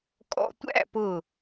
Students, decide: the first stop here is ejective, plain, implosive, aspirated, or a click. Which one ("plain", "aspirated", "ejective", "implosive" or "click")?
ejective